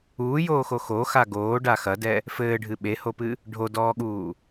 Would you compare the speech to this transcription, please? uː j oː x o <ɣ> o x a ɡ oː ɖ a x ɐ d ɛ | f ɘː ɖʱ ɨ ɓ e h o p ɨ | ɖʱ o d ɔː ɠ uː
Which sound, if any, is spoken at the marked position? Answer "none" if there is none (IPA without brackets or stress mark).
x